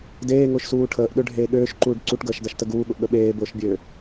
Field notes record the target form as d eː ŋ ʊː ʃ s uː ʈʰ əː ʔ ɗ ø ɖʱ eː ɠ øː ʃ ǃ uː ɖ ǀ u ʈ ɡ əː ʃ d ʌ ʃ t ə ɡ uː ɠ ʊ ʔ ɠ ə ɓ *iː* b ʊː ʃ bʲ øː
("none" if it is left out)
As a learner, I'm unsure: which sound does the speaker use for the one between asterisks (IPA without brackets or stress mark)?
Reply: eː